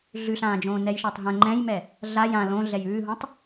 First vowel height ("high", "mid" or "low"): high